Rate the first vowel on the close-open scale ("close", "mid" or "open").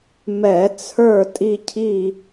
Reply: mid